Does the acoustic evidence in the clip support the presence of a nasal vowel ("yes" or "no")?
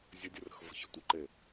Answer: no